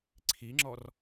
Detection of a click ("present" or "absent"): present